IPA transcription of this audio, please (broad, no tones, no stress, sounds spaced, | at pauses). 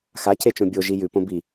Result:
x a cʰ e t͡ʃ õ bʲ o ʒ i j ʉ p õ b i